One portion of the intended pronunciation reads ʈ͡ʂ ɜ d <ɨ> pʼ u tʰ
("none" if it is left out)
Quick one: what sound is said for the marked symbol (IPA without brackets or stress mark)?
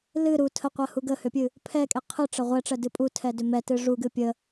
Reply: ɨ